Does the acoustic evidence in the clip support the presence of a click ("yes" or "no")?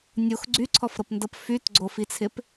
yes